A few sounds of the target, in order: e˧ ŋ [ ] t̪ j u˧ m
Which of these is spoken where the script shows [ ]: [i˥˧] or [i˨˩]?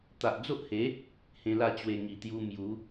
i˨˩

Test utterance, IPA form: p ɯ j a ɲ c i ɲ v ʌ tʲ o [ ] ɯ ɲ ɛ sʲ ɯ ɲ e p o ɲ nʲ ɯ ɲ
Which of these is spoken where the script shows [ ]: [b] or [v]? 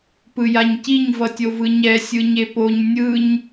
v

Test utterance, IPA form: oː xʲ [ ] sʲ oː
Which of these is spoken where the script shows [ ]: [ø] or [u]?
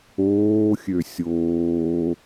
ø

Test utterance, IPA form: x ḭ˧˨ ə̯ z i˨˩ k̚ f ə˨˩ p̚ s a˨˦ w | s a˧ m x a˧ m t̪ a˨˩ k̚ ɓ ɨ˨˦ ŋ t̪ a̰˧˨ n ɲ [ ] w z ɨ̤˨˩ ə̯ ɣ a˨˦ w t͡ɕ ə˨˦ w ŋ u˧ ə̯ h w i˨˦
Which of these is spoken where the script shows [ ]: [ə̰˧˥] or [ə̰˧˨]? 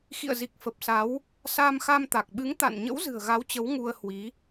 ə̰˧˥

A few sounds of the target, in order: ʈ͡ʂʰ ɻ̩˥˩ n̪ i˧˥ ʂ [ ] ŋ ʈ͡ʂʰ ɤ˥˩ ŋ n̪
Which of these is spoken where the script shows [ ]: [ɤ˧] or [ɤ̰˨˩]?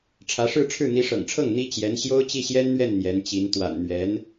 ɤ̰˨˩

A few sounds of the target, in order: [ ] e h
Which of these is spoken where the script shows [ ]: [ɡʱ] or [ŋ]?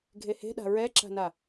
ɡʱ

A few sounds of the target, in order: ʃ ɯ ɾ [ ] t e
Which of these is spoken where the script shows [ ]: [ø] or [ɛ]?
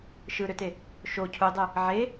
ø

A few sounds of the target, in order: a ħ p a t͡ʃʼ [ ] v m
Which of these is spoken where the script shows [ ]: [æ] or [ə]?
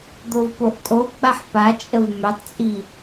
ə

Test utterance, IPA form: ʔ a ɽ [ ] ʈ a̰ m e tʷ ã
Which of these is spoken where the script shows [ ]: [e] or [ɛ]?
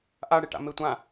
e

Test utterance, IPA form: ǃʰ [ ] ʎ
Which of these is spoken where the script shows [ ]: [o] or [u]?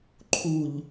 u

